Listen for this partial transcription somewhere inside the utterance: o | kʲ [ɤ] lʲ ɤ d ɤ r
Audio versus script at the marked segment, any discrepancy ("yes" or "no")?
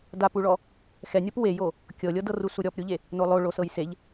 no